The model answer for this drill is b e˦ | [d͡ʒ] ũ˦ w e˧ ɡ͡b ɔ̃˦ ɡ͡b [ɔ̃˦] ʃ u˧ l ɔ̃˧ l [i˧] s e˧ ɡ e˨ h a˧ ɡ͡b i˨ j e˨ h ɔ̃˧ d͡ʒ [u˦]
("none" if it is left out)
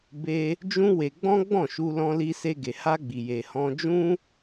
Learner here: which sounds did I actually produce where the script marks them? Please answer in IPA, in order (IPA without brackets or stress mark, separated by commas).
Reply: d͡ʒ, ɔ̃˦˨, i˧, ũ˦